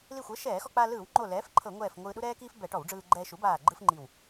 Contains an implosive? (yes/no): yes